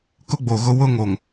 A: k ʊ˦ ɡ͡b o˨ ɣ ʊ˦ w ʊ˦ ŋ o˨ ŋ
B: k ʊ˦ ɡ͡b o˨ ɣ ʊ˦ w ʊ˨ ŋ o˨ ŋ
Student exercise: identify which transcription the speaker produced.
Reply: A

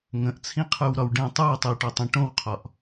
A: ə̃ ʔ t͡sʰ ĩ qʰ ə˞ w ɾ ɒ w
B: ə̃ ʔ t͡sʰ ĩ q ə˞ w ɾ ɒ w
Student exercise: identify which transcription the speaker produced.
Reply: A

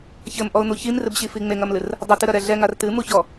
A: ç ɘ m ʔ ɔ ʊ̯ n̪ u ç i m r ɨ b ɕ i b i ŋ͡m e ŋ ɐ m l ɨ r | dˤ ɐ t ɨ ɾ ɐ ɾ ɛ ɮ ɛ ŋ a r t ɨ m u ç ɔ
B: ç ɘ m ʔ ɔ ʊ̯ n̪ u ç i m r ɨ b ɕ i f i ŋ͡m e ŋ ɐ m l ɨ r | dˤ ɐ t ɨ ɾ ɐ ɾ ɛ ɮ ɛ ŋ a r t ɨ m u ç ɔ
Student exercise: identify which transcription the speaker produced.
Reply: B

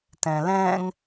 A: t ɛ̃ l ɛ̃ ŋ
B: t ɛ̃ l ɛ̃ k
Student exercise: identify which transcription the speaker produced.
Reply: A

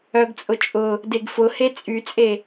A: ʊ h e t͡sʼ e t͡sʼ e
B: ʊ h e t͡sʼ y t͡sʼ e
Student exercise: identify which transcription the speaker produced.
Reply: B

